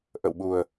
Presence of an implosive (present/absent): present